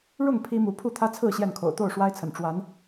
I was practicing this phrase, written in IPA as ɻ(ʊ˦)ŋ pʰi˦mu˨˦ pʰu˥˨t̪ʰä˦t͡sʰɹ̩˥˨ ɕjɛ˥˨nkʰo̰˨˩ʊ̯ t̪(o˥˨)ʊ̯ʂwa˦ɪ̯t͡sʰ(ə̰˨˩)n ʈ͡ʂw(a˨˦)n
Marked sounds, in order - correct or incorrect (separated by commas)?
incorrect, correct, correct, correct